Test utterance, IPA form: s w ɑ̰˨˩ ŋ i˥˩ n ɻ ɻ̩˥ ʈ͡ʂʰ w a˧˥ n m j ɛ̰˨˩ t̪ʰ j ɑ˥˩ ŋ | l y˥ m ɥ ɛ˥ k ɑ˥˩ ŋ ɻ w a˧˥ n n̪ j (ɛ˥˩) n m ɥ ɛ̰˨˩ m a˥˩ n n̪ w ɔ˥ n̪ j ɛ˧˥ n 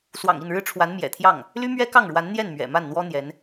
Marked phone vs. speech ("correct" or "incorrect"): correct